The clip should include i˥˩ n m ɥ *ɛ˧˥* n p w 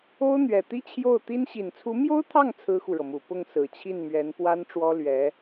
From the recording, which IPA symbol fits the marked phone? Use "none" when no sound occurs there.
ɛ˧˥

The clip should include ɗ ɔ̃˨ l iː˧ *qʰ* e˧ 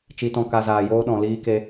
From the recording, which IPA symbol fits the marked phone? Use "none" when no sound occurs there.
k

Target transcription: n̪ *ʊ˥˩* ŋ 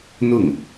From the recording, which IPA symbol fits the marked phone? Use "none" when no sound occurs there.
ʊ˥˩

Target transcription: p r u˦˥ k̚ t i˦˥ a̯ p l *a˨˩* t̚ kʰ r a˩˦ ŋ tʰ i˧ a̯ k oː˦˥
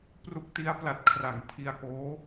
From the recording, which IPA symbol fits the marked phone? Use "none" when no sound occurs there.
a˨˩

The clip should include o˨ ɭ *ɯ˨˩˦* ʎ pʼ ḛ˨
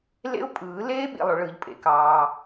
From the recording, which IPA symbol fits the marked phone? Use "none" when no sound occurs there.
ɯ˨˩˦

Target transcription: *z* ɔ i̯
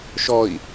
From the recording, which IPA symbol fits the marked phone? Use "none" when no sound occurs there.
ʃ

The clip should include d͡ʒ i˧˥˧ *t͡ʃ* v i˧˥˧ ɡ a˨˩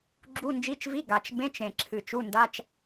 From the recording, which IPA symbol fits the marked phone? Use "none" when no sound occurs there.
t͡ʃ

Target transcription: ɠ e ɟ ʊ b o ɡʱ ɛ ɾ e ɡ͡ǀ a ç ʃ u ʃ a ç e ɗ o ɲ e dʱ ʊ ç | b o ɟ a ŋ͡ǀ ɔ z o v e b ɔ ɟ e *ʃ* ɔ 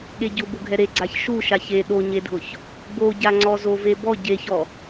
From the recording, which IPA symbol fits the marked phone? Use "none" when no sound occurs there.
ç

